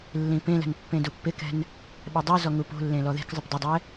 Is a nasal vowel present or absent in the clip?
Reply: present